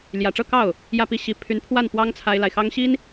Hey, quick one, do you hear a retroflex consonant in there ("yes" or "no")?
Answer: yes